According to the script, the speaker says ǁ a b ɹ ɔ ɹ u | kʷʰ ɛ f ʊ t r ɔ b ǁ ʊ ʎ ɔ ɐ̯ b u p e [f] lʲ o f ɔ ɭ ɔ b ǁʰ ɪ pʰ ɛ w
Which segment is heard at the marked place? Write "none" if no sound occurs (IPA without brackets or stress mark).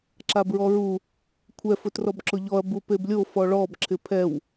b